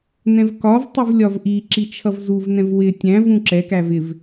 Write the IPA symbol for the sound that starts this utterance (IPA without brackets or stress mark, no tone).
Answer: n